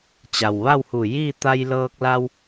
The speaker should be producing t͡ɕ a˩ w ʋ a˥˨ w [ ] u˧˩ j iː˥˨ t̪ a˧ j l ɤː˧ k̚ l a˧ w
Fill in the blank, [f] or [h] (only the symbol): h